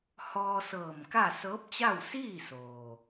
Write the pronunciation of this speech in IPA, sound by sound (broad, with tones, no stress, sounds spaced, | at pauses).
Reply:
h ɔː˧ s ɤː˧˩ m k a˥˨ s ɤː˧˥ p̚ t͡ɕ a˥˨ w s iː˥˨ s oː˩